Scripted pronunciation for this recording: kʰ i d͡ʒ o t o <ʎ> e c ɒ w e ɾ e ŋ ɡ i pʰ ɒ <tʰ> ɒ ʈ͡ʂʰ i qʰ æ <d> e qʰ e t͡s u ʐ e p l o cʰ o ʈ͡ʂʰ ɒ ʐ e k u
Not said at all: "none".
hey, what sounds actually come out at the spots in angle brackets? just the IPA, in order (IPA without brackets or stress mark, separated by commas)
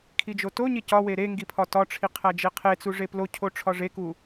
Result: ɲ, t, d͡ʒ